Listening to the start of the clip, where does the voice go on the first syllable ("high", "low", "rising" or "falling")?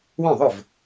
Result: falling